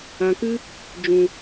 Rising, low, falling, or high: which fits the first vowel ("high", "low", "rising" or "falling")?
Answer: low